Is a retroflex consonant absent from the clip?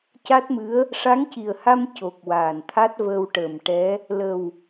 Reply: no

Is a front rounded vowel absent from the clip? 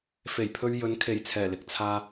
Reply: yes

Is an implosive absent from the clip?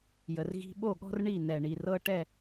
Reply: no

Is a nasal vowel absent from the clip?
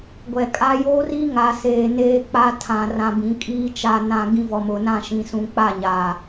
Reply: no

